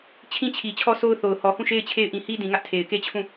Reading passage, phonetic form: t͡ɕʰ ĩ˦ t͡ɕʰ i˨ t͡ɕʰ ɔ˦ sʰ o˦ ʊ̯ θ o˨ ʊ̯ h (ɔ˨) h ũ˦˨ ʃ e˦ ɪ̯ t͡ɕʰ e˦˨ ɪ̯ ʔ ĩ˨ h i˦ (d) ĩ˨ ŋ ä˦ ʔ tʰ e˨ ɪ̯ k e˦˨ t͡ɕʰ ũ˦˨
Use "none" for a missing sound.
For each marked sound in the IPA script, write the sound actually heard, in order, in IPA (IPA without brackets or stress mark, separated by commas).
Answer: ɔ˨, d